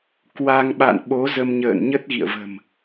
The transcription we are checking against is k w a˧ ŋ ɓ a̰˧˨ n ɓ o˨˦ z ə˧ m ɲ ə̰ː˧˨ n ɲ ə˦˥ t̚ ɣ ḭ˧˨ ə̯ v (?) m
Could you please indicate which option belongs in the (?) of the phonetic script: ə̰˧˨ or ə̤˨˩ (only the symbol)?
ə̤˨˩